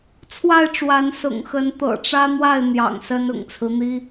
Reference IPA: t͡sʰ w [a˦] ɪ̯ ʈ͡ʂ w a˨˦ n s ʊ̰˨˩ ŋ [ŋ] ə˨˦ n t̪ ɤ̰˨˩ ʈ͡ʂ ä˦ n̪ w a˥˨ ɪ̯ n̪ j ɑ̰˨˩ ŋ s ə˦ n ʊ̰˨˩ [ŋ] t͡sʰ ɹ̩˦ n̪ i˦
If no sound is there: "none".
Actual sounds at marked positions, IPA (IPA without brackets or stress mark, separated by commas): a˥˨, x, ŋ